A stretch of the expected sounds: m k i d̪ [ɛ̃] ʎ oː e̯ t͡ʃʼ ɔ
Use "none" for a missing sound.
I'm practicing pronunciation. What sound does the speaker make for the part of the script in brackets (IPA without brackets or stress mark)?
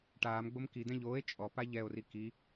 ɛ̃